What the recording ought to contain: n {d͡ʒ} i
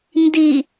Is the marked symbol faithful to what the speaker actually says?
no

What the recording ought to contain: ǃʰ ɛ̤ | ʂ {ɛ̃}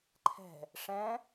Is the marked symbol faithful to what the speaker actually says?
yes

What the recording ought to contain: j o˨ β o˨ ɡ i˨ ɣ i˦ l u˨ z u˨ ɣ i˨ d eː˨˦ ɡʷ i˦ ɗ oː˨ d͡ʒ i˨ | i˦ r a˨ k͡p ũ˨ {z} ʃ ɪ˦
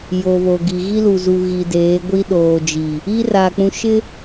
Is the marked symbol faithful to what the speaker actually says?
no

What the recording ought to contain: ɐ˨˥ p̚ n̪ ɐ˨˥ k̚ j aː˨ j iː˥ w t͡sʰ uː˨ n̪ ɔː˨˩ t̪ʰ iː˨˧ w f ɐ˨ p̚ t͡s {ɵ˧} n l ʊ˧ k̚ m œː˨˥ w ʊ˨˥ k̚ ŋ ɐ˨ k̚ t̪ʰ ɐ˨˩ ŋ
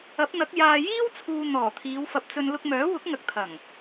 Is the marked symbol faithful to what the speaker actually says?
yes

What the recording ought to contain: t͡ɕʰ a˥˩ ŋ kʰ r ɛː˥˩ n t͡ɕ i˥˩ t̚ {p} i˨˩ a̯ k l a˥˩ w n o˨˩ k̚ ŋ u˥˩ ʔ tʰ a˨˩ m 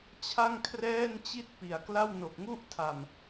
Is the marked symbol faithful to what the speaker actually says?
yes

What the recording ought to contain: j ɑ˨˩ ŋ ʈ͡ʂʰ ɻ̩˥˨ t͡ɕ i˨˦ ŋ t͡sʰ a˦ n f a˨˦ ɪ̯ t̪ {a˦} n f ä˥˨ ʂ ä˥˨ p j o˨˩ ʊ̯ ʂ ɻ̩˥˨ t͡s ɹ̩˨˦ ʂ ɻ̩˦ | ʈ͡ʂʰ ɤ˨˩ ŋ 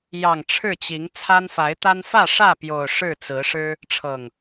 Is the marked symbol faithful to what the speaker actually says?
yes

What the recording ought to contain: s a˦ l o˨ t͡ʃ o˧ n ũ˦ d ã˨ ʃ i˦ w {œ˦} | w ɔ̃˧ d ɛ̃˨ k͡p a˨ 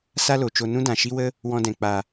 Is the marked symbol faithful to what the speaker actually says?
no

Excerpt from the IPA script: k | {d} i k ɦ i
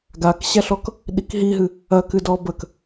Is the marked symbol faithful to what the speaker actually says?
no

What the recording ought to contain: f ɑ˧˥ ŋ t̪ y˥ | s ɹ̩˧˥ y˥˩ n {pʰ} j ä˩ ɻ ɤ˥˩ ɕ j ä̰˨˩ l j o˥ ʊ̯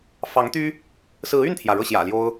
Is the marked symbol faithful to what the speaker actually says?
no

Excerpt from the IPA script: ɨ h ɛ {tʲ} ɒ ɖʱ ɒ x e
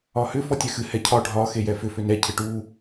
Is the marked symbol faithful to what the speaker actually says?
no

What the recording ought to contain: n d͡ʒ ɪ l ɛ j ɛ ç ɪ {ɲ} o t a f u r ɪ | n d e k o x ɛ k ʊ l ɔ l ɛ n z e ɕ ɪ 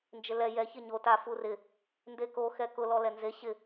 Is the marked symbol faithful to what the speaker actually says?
yes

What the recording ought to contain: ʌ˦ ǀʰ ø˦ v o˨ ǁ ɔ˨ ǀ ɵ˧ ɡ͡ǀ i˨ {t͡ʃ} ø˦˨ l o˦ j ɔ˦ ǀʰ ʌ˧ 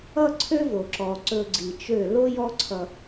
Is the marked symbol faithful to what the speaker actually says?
yes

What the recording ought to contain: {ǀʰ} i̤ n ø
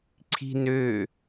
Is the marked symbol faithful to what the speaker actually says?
yes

